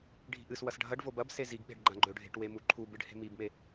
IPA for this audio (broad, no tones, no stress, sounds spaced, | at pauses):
ɖʱ i̤ ʔ ɨ s w ɐ s ɖʱ ɐ ɖ v o b ɐ b s e z i ɡ ɓ e̤ ɖ ɡ͡ǃ ã ɡ͡ǃ ɵ ɖʱ e̤ ʈ w e m u ǃʰ u b ɨ ɖ h e̤ m i b m e